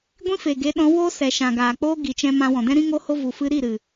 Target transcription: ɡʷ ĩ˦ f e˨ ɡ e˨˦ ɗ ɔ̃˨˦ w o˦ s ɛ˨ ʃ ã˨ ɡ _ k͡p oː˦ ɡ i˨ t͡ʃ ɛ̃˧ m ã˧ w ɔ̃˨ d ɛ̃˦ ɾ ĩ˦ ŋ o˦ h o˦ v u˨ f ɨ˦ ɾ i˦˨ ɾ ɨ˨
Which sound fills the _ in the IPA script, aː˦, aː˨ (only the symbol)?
aː˨